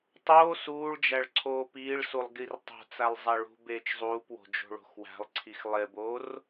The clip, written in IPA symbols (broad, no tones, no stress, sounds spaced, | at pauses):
tˤ oː s uː ɭ d͡ʒ æ ɭ ǀʰ oː p iː ɭ s u lˠ ɡ i r tˤ o̤ t͡s æ lˠ zˤ æ ɭ ṳ b eː t͡ʃ zˤ uː p w o̤ d͡ʒ o̤ ɭ o̤ x w æ̤ lˠ ǀʰ i x lˠ e b oː r